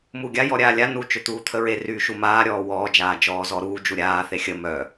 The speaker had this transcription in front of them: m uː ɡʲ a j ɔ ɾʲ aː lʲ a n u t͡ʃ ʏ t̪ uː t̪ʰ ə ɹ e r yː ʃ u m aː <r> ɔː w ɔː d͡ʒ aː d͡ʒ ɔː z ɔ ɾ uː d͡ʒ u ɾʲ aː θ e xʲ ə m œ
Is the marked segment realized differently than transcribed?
yes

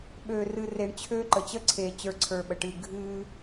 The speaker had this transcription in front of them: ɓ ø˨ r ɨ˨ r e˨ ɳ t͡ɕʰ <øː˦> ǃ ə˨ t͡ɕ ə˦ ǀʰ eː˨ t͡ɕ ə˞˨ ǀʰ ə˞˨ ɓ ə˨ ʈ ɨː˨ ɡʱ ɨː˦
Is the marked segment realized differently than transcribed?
no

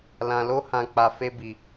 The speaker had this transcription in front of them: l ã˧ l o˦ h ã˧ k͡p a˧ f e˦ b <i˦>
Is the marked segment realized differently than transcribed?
yes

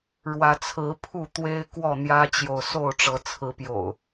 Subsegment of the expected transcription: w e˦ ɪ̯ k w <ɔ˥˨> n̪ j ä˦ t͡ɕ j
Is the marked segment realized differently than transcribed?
no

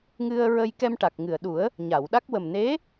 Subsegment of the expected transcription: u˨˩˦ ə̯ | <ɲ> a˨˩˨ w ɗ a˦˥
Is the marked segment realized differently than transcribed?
no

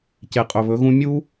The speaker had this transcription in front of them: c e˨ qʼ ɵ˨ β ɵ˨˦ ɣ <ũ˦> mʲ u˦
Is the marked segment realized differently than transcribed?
no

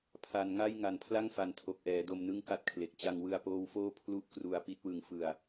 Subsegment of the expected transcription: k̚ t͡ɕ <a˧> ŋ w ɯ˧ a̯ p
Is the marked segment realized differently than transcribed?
no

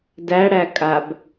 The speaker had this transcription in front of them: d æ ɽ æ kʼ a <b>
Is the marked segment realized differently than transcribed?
no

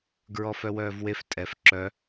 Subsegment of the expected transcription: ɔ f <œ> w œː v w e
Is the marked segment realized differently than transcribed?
no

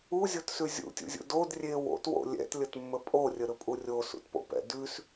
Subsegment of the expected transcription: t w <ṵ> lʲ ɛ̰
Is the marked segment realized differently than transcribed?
yes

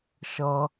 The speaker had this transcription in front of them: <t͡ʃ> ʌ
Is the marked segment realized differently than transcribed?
yes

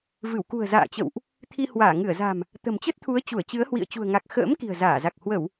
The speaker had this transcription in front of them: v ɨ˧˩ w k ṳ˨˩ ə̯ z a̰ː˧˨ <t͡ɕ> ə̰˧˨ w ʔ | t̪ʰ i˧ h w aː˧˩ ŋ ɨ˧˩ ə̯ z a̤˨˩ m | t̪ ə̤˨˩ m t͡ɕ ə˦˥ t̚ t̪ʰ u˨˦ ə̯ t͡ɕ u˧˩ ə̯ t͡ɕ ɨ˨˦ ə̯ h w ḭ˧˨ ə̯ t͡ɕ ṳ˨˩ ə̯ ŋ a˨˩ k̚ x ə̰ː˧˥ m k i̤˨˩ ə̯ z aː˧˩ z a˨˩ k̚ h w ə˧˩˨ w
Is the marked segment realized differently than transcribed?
no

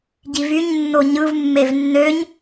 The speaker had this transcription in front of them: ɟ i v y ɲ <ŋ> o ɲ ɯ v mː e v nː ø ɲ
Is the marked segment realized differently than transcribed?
yes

